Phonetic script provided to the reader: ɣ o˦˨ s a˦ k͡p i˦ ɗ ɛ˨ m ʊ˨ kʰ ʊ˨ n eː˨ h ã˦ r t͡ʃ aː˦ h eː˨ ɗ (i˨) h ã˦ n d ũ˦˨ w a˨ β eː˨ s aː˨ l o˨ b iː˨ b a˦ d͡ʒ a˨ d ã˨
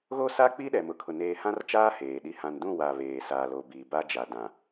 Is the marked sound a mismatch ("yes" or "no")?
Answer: yes